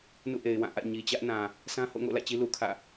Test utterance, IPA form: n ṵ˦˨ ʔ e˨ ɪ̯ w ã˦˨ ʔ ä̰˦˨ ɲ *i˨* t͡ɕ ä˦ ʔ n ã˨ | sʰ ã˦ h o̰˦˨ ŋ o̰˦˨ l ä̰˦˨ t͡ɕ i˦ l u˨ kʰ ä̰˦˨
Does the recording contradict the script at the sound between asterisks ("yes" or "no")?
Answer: no